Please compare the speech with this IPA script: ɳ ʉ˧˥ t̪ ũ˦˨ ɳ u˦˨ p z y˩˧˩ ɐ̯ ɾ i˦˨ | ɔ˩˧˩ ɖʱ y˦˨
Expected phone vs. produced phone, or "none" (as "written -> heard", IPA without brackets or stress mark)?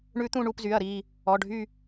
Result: none